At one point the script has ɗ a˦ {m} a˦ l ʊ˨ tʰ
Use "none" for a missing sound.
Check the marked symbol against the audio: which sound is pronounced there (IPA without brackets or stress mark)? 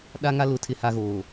ŋ